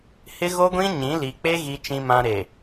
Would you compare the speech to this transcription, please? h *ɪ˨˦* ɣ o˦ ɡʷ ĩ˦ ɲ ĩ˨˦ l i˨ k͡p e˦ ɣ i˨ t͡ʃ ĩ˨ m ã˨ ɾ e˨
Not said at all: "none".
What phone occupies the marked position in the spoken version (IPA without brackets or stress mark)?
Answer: ɪ˦